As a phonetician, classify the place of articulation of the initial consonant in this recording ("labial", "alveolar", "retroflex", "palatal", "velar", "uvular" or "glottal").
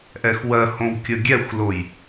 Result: glottal